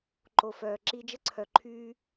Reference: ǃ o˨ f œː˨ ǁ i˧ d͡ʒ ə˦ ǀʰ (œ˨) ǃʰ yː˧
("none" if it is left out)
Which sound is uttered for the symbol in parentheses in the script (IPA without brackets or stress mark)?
œ˨